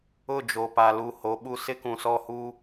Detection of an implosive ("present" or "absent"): present